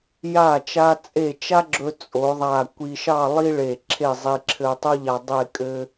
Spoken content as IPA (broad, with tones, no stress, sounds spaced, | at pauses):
j a˧˩ t͡ʃ a˧ t͡sʼ e˧˩ t͡ʃ a˥ ɡ͡ǁ ɵ˧ t͡sʼ o˩˧ ðˤ a˧˩ kʷ i˧ ʃ ɑ˥˧ lˠ i˥ ɭ e˧˩ ǁʰ e˥˧ zˤ i˧ ǁʰ ɘ˧ tˤ o˥ ʎ a˧ dˤ e˥˧ kʼ ɘ˥